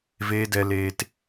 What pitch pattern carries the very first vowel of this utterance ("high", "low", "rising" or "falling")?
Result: high